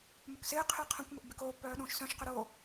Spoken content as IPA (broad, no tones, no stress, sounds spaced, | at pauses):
m ʏ k s ɪː qʰ ɪː qʰ ɐ̃ kʷ m ʏ ʔ b ɪ k oː pː œː ɗ ũː ʃ s œ̃ ʃ q ʏ ɾ oː